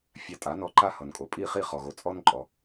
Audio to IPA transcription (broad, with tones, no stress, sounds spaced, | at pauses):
fʲ a˧ tʼ a˩˥ n ɔ˧ ǃ a˥ h ʌ˩ n kʼ o˩ pʼ i˥˩ χ i˥˩ χ ɔ˩ ɣ o˩ t͡sʼ ɔ˥ n ǃʼ ɔ˩